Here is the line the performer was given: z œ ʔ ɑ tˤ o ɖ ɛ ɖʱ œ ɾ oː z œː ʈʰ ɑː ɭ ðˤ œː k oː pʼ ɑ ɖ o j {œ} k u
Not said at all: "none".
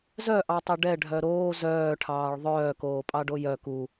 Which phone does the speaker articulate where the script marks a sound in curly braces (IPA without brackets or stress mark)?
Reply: œ